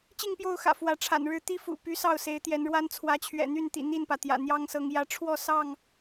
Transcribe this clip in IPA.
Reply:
t͡ɕ i˥˨ ŋ p j o˥˨ ʊ̯ x ä̰˨˩ f w ä˨˦ ʈ͡ʂʰ a̰˨˩ n ɻ ɻ̩˦ t̪ i˦ f ṵ˨˩ p y˨˦ s ɑ˥˨ ʊ̯ s e˨˦ ɪ̯ t̪ j ɛ˨˦ n ɻ w a˦ n t͡sʰ w ä˨˦ t͡ɕʰ ɥ ɛ̰˨˩ n̪ y˥˨ n t̪ ḭ˨˩ n̪ i˥˨ n p ä˩ t̪ j ä̰˨˩ n̪ j ɑ˦ ŋ s ɤ˨˦ ŋ j ä˨˦ ʈ͡ʂʰ w ɔ˥˨ s ɑ˥˨ ŋ

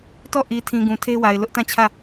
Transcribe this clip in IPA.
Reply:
t ɔ˦˨ ʔ i˨ tʰ ĩ˨ ɡ ũ˨ tʰ e˦ w a˨ ɪ̯ l ʊ˦ ʔ t ã˦˨ t͡ɕʰ ä˦˨

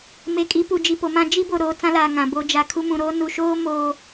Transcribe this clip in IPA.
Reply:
m e˨ kʼ i˨˦ p u˨ d͡ʒ i˨ p o˨ m ã˦ d͡ʒ i˦ b o˨ ɾ oː˨ t͡s ã˦ l aː˨ ŋ ã˨ b oː˦ d͡ʒ a˨ kʰ u˦ m ũ˨ ɾ o˦ n u˨ ʃ oː˦ m oː˨

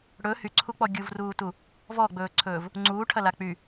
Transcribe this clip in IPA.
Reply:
ɽ ɵ h y ǀʰ u k͡p ɔ ɡʲ u v r uː t u | v ɔ ɡ͡b ɵː ǀʰ ɵː v | ŋ͡ǀ uː ʈʰ ɐ l a k͡p y

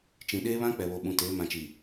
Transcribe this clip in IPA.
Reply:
t͡ʃ ĩ˨ ɗ eː˦ β ã˦ k͡p ɛ˨ β o˨ ɓ ũ˨ t eː˨˦ m ã˨ t͡ʃ i˨

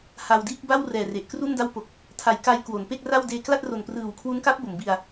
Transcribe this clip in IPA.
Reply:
h a˧ w d iː˥˩ k̚ b a˥˩ w r ɛː˨˩ r e˨˩ ʔ k r u˥˩ n d a˥˩ w p o˨˩ k̚ | tʰ a˩˦ j k a˧ j k w o˩˦ n p e˥˩ k̚ r a˥˩ w d eː˧ k l a˥˩ t̚ r o˨˩ n p r ɯː˨˩ w kʰ w u˦˥ n k a˦˥ p̚ b o˩˦ m b i˧ a̯

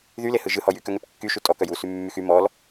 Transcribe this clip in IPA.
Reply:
ð y l e h ɯ ʒ ɯ h ɔ j y k œ ŋ ɛ p kː y ʃ u tʼ ɔ k œ j u s y mː y x y m ɔ l

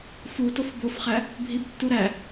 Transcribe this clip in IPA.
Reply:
f u t o f b o f χ æ | bʱ i b tː u ɾ æ

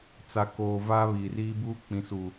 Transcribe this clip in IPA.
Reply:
t͡s a˨ k oː˨ v aː˦ β iː˨ r iː˦ b uː˦ k͡p ĩ˨ s uː˨

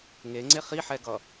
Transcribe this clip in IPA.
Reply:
ŋ e ŋ͡ǀ e χ i ħ ɛ ɡ ʌ

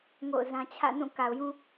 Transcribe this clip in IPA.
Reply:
ŋ o̰˦˨ ʊ̯ z ã˦ t͡ɕʰ ä̰˦˨ n ũ˦˨ k a˨ ʊ̯ j ũ˦

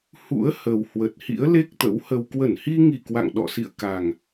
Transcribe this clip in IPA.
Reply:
h ṵ˧˥ ə̯ h ə˨˩ w h w ə˨˩ t̚ h ḭ˧˥ ə̯ l e˦˥ k̚ t̪ ə̰˧˥ w h ə˧ w k w ə˧˩ n h i˧ ŋ i˧˩ k w a̰˧˨ ŋ ɗ ɔ̰˧˨ s ḭ˧˨ ə̯ k a˨˩ ŋ

